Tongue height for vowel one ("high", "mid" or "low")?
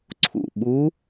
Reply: high